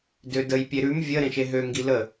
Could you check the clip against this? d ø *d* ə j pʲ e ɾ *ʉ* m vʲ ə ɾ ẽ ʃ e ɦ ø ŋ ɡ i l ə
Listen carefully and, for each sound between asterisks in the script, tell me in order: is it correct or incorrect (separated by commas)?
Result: correct, correct